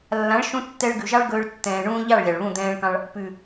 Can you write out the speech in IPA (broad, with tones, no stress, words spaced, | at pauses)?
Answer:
lːã˨˦ɭʃũ˧ tːɛ˧ɭɡʉ˨ʒɑ˦ɭɡɵː˧ɭ tːɛ̃ː˨ɳũː˧ʎɑ˦˨ɭ lʲɑ˨ɭβũ˦˨d̪ɛ̃ː˦ɭkɑ̃˦ɭ | pʉ˨